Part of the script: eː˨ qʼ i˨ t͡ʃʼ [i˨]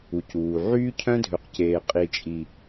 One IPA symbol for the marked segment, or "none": i˨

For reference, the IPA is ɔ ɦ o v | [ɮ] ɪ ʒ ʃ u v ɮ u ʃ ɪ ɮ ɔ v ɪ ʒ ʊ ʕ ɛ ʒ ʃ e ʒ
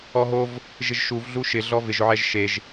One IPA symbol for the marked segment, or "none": ʒ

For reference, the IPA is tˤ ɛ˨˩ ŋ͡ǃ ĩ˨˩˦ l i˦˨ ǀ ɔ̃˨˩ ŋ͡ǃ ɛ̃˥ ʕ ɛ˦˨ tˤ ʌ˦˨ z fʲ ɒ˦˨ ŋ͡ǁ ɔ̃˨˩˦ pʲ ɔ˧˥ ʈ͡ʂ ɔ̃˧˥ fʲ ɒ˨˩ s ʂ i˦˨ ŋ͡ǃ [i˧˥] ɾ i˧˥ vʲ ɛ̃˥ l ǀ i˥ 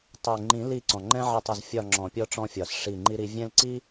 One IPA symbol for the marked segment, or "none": i˥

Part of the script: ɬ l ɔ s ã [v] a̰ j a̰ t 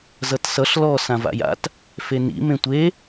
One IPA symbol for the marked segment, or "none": v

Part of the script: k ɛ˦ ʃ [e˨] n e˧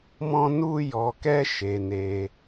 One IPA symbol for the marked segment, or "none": e˧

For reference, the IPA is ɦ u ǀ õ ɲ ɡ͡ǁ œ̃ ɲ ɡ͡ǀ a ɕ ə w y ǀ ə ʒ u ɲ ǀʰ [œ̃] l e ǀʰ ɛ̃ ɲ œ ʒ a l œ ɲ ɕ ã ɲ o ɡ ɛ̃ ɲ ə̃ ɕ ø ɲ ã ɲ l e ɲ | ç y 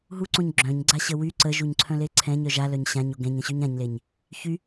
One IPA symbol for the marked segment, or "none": œ̃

